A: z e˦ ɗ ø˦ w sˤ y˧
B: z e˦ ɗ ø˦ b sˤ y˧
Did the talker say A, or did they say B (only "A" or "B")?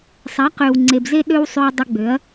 A